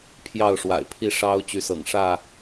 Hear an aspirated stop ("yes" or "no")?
yes